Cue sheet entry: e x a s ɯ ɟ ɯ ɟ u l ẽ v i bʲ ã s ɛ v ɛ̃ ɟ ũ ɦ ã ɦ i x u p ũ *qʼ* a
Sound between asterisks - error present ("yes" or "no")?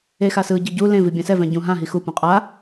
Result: no